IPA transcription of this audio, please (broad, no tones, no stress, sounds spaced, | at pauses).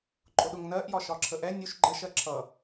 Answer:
ǃʼ ʊ ɗ ʊ ŋ n ɜ ʔ j ɒ ʃ ɒ ǁʰ ə ʔ ɛ nʲ u ʃ ɡ͡ǃ ɜ ʃ ɜ ǁʰ ʌ